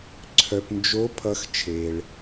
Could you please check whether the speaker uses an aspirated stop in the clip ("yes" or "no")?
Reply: yes